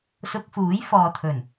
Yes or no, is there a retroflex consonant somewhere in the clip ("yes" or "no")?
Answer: no